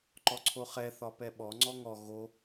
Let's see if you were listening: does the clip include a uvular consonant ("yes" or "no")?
yes